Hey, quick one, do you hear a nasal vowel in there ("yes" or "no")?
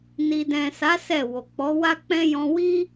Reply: yes